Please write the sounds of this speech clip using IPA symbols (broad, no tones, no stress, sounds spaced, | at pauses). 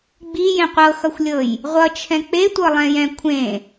ɡ͡b i j ẽ qʷ ɤ x ʌ xʷ lʲ ɤ j | ʁʷ ʌ t͡ʃʰ ɛ̃ k͡p e tʷ ɤ lˠ ɛ̃ j ɛ̃ kʷʰ ẽ